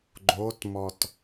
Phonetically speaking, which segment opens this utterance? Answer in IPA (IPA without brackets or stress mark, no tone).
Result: ɡ͡ǃ